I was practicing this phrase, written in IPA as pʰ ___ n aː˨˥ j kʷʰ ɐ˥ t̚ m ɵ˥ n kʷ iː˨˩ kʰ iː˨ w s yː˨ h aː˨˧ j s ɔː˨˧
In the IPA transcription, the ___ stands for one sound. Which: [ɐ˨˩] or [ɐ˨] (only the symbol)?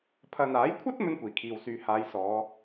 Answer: ɐ˨